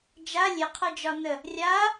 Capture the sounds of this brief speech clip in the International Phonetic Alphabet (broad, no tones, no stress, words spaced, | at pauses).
d͡ʒa lʲeqʰə˞ d͡ʒɒnə | rʲa